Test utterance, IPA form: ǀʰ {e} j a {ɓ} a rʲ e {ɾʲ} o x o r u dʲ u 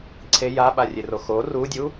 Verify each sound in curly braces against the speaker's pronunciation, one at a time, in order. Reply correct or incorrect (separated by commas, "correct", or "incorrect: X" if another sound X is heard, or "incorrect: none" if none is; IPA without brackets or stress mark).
correct, correct, incorrect: r